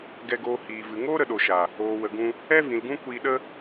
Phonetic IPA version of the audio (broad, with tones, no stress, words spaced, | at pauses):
ɡɛ˧ɡoː˧hiː˨vɨ˨ ŋoː˦ɾə˨ɗo˨ʃa˨ | oː˨wə˨ɡũ˧ | ɛ˦vĩ˨lɡũ˦ kʷiː˧ɗə˦